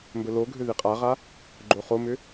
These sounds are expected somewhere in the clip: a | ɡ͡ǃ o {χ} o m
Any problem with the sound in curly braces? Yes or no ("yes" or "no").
no